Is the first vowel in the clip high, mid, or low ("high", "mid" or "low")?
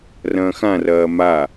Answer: low